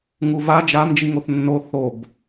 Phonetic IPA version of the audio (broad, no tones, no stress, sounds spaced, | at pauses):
ŋ u v a d͡ʒ a m d͡ʒ i ŋ o θ nː o θ o b